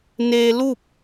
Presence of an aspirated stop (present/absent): absent